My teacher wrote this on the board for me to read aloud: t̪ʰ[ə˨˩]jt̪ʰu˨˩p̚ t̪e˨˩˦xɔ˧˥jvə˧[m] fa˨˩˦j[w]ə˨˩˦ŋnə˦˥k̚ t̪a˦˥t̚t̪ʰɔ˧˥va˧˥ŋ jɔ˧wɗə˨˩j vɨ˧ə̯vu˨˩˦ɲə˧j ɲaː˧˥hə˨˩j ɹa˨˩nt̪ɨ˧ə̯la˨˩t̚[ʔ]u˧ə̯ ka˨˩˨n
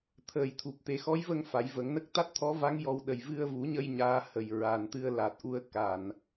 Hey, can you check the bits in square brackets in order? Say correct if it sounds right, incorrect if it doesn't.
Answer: incorrect, incorrect, incorrect, correct

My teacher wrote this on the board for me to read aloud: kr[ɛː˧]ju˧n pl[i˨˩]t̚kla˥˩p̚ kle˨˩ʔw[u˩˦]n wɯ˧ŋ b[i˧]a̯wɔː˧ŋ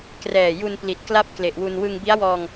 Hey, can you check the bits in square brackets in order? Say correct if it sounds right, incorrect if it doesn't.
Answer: incorrect, correct, incorrect, incorrect

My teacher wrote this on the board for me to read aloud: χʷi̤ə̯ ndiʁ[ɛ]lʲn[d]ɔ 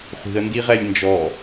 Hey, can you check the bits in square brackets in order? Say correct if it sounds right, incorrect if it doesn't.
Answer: correct, incorrect

